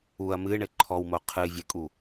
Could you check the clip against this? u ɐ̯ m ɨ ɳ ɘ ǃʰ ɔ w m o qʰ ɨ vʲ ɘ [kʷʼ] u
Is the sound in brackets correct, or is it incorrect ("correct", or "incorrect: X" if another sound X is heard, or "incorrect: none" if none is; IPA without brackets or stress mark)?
incorrect: kʼ